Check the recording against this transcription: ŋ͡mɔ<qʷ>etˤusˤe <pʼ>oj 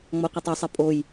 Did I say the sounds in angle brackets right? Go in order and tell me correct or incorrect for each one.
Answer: correct, correct

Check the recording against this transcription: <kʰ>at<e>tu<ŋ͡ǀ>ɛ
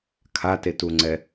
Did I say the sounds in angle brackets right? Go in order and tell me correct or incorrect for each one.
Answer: correct, correct, correct

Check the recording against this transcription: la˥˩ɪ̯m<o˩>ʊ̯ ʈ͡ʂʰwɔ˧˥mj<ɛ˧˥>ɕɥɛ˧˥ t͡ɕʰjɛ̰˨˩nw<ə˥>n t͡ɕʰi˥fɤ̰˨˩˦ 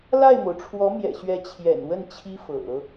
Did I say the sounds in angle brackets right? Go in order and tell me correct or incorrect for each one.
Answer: correct, incorrect, incorrect

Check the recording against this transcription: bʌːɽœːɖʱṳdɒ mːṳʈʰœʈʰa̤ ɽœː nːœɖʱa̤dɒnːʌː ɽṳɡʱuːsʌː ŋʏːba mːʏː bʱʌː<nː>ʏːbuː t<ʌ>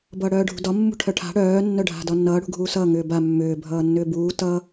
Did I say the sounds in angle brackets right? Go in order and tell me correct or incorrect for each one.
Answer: correct, correct

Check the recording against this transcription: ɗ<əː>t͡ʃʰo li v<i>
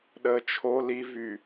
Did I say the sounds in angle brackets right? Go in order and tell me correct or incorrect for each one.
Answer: correct, incorrect

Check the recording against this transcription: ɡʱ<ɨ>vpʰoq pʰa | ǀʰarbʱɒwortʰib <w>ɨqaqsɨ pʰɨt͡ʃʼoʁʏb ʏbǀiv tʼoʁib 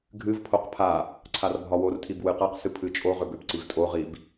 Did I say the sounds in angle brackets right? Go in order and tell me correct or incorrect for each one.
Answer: correct, correct

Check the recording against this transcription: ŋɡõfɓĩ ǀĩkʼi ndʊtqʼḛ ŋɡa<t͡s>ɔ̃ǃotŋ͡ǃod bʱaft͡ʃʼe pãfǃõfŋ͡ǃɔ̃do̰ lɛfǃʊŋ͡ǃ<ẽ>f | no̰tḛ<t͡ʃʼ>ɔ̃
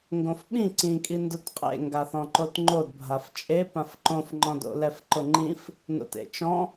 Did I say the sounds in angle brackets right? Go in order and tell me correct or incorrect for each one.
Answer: incorrect, incorrect, incorrect

